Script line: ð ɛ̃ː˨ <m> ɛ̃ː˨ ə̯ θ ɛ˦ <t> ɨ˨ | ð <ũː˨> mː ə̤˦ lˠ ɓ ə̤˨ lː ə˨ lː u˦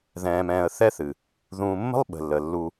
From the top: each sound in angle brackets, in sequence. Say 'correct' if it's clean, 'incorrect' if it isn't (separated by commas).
correct, incorrect, correct